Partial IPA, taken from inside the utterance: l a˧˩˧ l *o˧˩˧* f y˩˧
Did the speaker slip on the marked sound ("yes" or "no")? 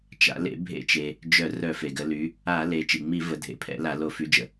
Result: no